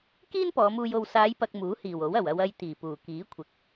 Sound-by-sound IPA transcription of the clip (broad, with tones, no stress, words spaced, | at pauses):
kiː˥n pɔː˨˧muː˧j o˨wsaː˨˧jpɐ˨k̚ muː˨˥hiː˨˩w o˨˥wɐ˨˩w ɐ˧wɐ˧j t̪iː˨˩puː˨˩kiː˨˥ kʷʰɪ˨˥k̚